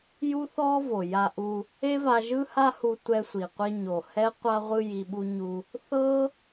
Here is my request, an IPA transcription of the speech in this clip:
j u˦ θ ɔ˦ v o˨ j a˧ ʔ u˧ | e˦ v a˧ ʒ ɯ˦ h a˦ h u˧ tʷ ɛ˧ sʷ i˨ qʷ i˧ ɲ o˨ h ɛ˦ qʷ a˧ ʁʷ ɯ˧ j i˧ ɓ u˦ ɲ u˧ | θ ɤ˦

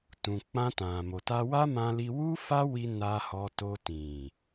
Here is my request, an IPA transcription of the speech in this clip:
t ũ˨ k͡p ã˧ t ã˨ m o˨ t a˧ w a˦ m ã˧ l i˧ w u˦ f a˦ w i˧ n a˧ h ɔ˧ t o˧ t ĩ˨

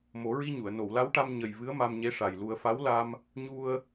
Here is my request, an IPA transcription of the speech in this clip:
m o˨˩˦ ɹ i˧ ɲ u˨˩˨ ə̯ n o˨˩˨ w l a˧˥ w ʈ a˧ m ɲ ə˨˩ j v ɨ˧˥ ə̯ m a˧ m ɲ e˧˥ ʂ a˨˩ j l u˧ ə̯ f a˧˥ w l a˧ m | ɲ u˧ ə̯

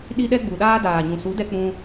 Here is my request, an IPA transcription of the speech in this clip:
ɗ i˧ ɗ ɛ˧ ɡ͡b u˨ ɗ aː˧ d aː˨ ɲ ũ˨ s u˨˦ d ɛ˧ k͡p ũ˧

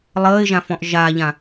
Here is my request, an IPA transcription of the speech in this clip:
lˠ əː ɪ̯ ʒ ã f ɔ̃ ʔ ʒ a ʎ ã

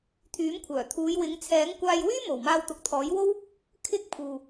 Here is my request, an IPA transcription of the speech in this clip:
t̪ʰ yː˨˥ m kʷʰ œː˨˩ t̪ʰ uː˨˧ j w ɪ˨˧ ŋ t͡sʰ ɛː˨˥ ŋ kʷ aː˧ j w yː˥ m o˨˩ w m aː˧ w t̪ ʊ˨ k̚ t̪ʰ ɔː˨˥ j w o˥ w | kʰ ɪ˥ k̚ pʰ uː˨

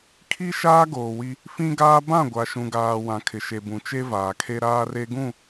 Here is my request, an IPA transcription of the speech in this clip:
kʰ i˦ ʃ aː˦ ɡ oː˨ w i˦ | f ĩ˦ ɡ aː˦ b ã˦˨ ɡʷ a˨ ʃ ũ˨ ɡ aː˨ w ã˨ kʰ ɪ˨ ʃ e˨ b ũ˨ t͡ʃ e˦ v aː˨ kʰ e˦ ɾ aː˦ r e˦ ɡ ũ˦˨

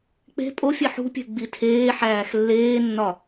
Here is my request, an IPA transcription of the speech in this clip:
k͡p e̤ pʼ o fʲ e ħ ṳ pʲ e̤ ɡ͡b i tʰ eː ħ æː x lː eː nː ɒ

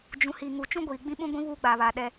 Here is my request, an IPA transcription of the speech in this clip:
d͡ʒ ũ˨ h iː˨ ŋ u˨ t͡ʃ ũ˦ ɡʷ iː˨ ɡ͡b ĩ˦ ɓ ũ˦ ɡʷ ĩ˦ β uː˦ ɡ͡b aː˨ β a˨ ɗ ɛ˦

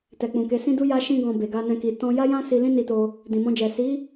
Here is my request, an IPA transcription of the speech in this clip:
t ɛ˨ k͡p ũ˨ k e˨˦ s ĩ˦ d u˦ j a˦ ʃ ĩ˦ ɡ ɔ̃˧ b e˨ ɡ a˧ n ɛ̃˧ k i˧ t ɔ̃˧ j a˦ j ã˦ s i˧ l ĩ˦ n i˧ t o˧ | d ĩ˨ m ɔ̃˧ d͡ʒ ɛ˨ s i˨˦

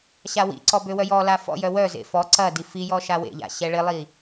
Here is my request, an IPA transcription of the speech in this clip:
ɕ a w ḭ ǀ ɔ b ø w œ j ɔ l a f ɔ̰ j œ w œ z ḛ f ɔ ǀ ɐ d i f i j ɔ ʃ a w ḛ ʎ a̰ ɕ ɛ ɭ ɪ lˠ i

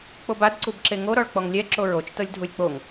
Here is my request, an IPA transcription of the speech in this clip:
k͡p o b a d ǀ u b ǁ e ŋ o ɾ ɔ ɭ k͡p ɔ ŋ lʲ ɛ ǁ o ɹ o t͡ʃ t ɤ lʲ dʱ u lʲ k͡p o ŋ

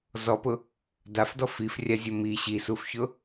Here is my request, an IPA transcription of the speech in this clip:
z ɔ p ʊ | d a f d ɔ f i f rʲ a zʲ o m i ɕ i s u f ç ʊ

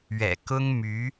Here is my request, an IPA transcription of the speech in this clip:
ɥ ɛ̰˨˩ k ʊ˥ ŋ m y˧˥

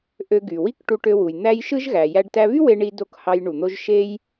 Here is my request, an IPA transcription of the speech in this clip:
ʔ ø˧ ɡ y˩ w i˥ k ʈ u˧ ʈ ø˧ w u˩ j n̪ æ˧ j ʃ ɯ˥ ʒ ɣ æ˩ j æ˧ ɖ t æ˧ β y˥ w e˧ ɳ i˧ d o˧ k h ɑ˧ j ɳ u˩ n̪ o˧ ʒ ʃ e˥ j

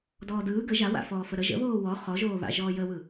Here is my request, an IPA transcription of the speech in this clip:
d ɔː d ɯː ɡ ə ʒ a w a̰ f ɔː f ə ɾ ə ʒ ə̰ β oː w ɔ χ ɔ ʒ oː β a̰ ʒ ɔː j ə w ɯ

